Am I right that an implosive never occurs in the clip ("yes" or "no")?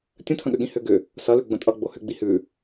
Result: no